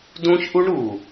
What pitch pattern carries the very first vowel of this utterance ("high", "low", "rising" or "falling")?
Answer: high